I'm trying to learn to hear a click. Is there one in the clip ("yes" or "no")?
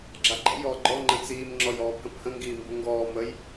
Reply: yes